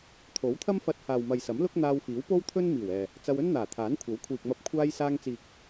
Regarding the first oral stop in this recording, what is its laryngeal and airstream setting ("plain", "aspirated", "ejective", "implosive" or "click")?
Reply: aspirated